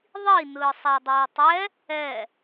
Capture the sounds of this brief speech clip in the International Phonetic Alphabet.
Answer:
ðˤinɯːsˤ adˤɯːtˤɛ | ɛ

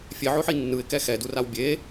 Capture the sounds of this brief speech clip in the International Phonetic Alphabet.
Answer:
fʲeʕoħi nːɯɪ̯kɛ xɛduraw bʲe

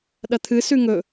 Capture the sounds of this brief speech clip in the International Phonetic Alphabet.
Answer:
ɗɐt̪ʰɨ sʉŋɵ

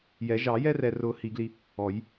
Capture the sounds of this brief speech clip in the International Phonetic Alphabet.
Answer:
jɛ˨˩˦ ʒɑ˨˩˦jɛ˦rɛ˨rʊ˨˩˦ hi˨˩˦ɡli˦ | ɔ˨˩˦j

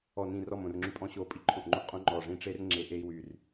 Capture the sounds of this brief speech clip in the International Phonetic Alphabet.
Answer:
ɔ˨˩nĩ˨˩ rɔ˨˩mõ˨˩rŋ͡ǁy˨˩ pʼɔ̃˧ɕo˨˩ pʼi˧ǃʰõ˨˩ʔŋ͡ǃõ˧ʔqʼõ˧ ŋ͡ǃɔ˨˩ʐĩ˧ ʈ͡ʂe˧r ŋ͡ǁe˨˩ʔe˧i̯wy˨˩r

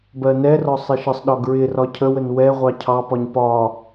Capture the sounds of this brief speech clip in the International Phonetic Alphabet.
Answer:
bɜnɛrɒ sˤɪʃəsˤɗɒ ɡɹɪrɒ cʰəwən wɛ ʁʷɑcʰɑpɒɲ pɒ

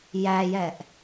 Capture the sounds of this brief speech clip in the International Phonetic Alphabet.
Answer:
jæjɛʔ

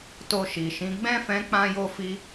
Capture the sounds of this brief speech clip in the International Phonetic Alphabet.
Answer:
to˧ʃi˨ʃĩ˨˦ ɡ͡bɛ̃˦˨fɛ̃˨˦ k͡pã˧jo˧fi˧

